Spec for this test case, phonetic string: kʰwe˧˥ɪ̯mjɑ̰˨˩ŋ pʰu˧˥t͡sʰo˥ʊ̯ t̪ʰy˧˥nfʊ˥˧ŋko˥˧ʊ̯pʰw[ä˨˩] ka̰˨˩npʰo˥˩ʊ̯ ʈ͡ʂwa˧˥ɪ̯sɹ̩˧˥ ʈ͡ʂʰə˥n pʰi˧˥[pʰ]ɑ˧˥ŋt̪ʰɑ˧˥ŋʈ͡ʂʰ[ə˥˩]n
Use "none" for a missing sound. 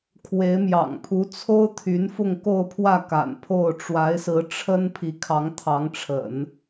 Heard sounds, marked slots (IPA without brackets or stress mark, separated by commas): ä˥˩, kʰ, ə̰˨˩˦